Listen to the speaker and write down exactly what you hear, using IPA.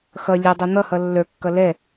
x ʌ lʲ ʌ dˤ ɛ n̪ ʌ h ʌ lː ə˞ kː ʌ l ɛ

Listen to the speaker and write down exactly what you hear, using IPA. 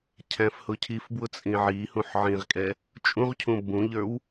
cʰ æ̃ f h ʊ cʰ i f b w ʊ t͡sʼ ĩ ʕ i h ũ ħ ʕ ĩ ʁ kʼ ɛ | t͡ʃʼ ũ ʁ cʰ ũ b ũ ʎ ə˞ w

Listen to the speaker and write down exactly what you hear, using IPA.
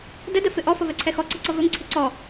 d ə d ə f ɪ ʔ ɔ f ʌ v ɛ ǀʰ ɛ x ɔ ǀ ʌ ǀ ʌ v ɵ ŋ ǀʰ ɪ ǀ ɔ

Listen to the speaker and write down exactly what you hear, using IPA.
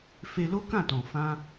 f e˧ l o˦ k ã˦˨ t ɔ̃˨ f ã˧

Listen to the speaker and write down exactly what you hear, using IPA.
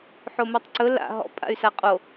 ħ o m o tˤ ǀ ɵ l a̰ ɦ ɔ̰ pʼ a̰ y̯ s a qʼ o

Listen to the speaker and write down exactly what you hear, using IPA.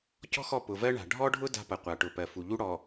c ɔ̤˦ x ɔ˦˨ p ʊ˨ v ɜ˦ ɳ a̤˨ ɖʱ ɔ˦ ɖʱ ʊ˦ d a̤˦ p ɐ˨ qʷ a˨ ʈ ʊ˨ p ɜ˨ f u˨ ʎ u˦ ɽ ɔ˨

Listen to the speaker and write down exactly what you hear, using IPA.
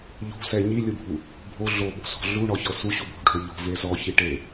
ʎ o̤ s ɛ ɲ i lʲ ɯ bʱ u | bʱ o ɮ o ɓ o̤ s ɔ̤ ɮ u ɳ ɔ ç ɤ s u ɕ u bʱ o̤ ɖʱ o ʎ o̤ v e z ɔ ç i ʈ e

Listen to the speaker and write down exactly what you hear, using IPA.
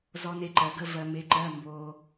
z ɔ˧ n e˧ ǃ ɜ˩˧ ɡ ə˧˥˧ v ɜ˧ m e˧ ǃ ɜ˧˥˧ m b o˧

